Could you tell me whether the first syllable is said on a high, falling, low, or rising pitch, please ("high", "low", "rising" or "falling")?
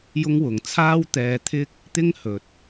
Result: high